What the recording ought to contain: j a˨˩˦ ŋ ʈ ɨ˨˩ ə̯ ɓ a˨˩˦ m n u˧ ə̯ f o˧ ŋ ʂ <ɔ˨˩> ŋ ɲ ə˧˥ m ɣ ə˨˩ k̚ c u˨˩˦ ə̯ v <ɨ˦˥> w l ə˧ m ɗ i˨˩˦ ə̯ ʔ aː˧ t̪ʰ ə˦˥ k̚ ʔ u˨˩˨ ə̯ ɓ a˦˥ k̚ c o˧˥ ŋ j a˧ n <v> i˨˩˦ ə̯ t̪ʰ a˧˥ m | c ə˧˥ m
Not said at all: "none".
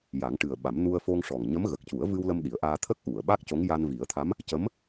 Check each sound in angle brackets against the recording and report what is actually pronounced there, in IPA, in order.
ɔ˨˩, ɨ˧, v

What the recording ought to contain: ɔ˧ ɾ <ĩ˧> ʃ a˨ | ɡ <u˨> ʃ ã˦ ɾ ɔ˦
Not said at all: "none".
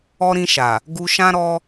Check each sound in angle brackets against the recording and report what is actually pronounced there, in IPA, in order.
ĩ˧, u˧

